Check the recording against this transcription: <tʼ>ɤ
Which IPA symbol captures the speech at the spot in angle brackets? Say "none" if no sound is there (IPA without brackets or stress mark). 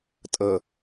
tʼ